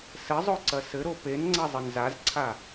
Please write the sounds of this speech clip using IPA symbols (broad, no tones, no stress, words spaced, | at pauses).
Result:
sɘzˤoǀɐ sɘɾo penŋ͡ǀɐzˤɘn zazǀʰa